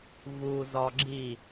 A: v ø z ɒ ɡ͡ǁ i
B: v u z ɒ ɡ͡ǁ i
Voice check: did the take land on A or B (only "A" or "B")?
B